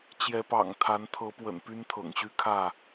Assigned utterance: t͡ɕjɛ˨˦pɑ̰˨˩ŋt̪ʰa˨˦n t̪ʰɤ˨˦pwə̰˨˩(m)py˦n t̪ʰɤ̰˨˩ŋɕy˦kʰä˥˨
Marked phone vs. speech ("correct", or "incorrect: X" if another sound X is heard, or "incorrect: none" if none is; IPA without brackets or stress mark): incorrect: n